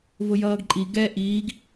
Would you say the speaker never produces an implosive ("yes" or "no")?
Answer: yes